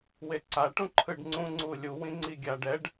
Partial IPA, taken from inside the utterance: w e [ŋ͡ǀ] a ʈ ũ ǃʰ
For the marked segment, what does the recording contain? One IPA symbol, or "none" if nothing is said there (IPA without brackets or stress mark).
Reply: ǀ